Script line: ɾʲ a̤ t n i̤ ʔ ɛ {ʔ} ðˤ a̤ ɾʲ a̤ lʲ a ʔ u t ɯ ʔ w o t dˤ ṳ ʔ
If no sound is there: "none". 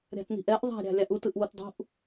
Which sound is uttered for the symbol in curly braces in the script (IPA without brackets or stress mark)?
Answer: ʔ